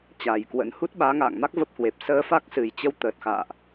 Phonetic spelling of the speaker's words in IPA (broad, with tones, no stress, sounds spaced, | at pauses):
t͡ɕ aː˨˩ j k w ə̰˧˥ n h u˦˥ t̚ ɓ aː˨˦ ŋ a̰ː˧˨ ŋ m a˦˥ k̚ v ə˦˥ p̚ h w e˨˩ p̚ s əː˧ f a˦˥ k̚ s ɨ˨˩ j t͡ɕ ə˨˦ w t̪ əː˨˩ t̚ x a̰ː˧˨ ʔ